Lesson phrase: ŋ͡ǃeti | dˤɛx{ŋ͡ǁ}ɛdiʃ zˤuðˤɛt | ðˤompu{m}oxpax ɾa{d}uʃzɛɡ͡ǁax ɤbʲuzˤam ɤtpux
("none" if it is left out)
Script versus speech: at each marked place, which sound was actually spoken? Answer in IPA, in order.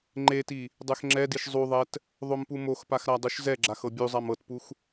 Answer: ŋ͡ǁ, m, dˤ

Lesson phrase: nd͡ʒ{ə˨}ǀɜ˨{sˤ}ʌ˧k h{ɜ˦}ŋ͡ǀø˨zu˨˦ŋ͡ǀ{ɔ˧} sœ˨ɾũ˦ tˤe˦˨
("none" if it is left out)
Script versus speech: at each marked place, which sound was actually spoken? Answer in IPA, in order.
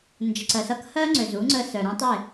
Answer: ə˨, s, ɜ˦, ə˧

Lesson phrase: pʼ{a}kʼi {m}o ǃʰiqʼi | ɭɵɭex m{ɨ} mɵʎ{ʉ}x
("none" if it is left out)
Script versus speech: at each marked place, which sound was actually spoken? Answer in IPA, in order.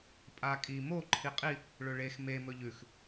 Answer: a, m, e, ʉ

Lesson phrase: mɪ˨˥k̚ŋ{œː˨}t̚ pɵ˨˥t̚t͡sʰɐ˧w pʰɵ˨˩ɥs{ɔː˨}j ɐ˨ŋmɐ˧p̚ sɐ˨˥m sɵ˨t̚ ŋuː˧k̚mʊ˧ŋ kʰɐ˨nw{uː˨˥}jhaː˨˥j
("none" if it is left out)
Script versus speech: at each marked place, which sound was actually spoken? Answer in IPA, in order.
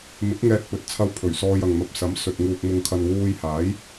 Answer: ɛː˨, ɔː˧, uː˧

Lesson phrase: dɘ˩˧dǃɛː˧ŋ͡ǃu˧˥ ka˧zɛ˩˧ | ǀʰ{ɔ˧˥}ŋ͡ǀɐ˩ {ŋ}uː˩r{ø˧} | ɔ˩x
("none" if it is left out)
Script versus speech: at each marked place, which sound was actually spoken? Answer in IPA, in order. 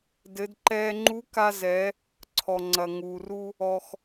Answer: ɔ˩, ŋ, u˧

